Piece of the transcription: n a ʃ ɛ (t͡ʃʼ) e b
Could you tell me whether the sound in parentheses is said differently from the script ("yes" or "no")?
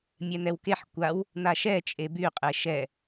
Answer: no